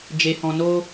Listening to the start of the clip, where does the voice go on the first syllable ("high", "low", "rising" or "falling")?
low